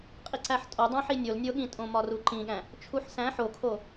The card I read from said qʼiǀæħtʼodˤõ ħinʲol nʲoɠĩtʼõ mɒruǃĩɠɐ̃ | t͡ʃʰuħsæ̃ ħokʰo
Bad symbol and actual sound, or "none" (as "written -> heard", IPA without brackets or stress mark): ɐ̃ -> æ̃